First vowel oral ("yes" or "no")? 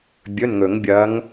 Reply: yes